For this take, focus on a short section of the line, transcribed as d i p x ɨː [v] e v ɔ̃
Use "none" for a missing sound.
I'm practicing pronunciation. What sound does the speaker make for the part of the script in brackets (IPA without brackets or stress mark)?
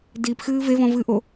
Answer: v